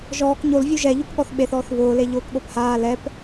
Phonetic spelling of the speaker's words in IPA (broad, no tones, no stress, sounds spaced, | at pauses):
ʒ ɔː k ɲ o l vʲ u ʒ ɛ ʎ u k ɠ ɔ θ ɓ e θ ɔː θ β ʊː l e ʎ ʊː k ɠ o p h aː l ɛ p